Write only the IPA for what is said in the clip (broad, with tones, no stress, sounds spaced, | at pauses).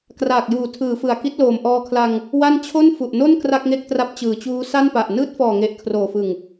k r aː˨˩ k̚ j uː˩˦ tʰ ɯː˩˦ f ɯ˨˩ a̯ k i˦˥ t̚ l oː˨˩ m ʔ ɔː˧ kʰ l a˧ ŋ | w a˥˩ n t͡ɕʰ o˥˩ n f u˨˩ ʔ n o˥˩ n k r a˥˩ k̚ ŋ e˥˩ k̚ t r a˦˥ p̚ t͡ɕ ɯː˨˩ t͡ɕ uː˦˥ s a˥˩ n p a˨˩ ʔ n ɯː˦˥ t̚ f ɔː˨˩ ŋ e˨˩ ʔ kʰ r oː˨˩ f ɯ˨˩ ŋ